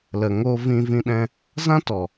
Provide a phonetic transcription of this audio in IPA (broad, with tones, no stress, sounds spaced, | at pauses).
l ə˨ ŋ oː˧ v ĩ˧ v ĩ˧ ɗ ɛ̃˧ | z ã˦ t ɔ˨